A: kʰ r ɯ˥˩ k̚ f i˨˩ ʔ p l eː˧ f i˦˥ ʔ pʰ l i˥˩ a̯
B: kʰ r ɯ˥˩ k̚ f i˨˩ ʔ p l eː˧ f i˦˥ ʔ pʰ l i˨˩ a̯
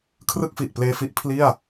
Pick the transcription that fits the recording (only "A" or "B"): A